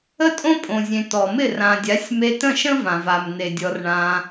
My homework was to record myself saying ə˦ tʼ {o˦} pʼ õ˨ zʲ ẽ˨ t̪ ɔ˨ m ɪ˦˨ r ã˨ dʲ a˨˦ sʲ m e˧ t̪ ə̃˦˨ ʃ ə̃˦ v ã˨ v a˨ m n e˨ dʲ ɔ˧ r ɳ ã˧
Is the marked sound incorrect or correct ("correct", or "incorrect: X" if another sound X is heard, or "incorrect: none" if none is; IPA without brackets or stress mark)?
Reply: incorrect: õ˦